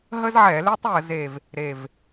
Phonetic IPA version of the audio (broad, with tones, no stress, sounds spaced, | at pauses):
ɦ ə˦ z ʕ ɛ˧˩˧ l e˦ tˤ j ə˧˩˧ z e˧˩ v | ɾ e˧˩ v